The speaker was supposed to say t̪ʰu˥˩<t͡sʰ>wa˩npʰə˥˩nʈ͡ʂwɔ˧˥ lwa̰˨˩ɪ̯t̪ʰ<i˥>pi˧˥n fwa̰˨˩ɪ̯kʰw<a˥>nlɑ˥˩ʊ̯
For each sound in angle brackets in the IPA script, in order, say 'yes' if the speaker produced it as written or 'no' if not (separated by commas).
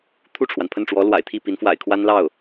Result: no, no, yes